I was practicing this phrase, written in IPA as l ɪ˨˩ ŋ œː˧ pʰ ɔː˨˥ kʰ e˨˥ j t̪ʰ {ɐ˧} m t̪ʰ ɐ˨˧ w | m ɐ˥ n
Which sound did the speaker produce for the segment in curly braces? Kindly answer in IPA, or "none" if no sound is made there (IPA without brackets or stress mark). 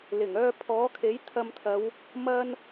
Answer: ɐ˧